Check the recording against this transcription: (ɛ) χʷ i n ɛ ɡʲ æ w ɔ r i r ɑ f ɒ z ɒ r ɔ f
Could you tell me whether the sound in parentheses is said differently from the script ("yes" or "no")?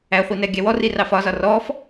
yes